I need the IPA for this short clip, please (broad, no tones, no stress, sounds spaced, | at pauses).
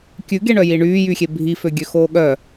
kʲ ʉ ɡ e ɳ œ j i ɳ yː j y xʲ e bʱ i f ø ɡʲ ø x oː ɠ œ